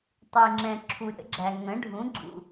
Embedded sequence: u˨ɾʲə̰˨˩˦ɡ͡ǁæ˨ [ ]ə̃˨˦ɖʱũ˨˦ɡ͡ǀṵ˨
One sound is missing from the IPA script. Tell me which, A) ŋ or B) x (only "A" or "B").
A